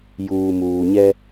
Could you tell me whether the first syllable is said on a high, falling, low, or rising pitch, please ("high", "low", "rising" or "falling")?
low